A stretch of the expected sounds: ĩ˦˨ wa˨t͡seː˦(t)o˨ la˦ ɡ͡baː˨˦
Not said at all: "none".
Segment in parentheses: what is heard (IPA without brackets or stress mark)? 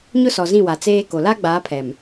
k